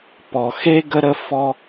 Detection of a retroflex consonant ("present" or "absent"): absent